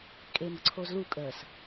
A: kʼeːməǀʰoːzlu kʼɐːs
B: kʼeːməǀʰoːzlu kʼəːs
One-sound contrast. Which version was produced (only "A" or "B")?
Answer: B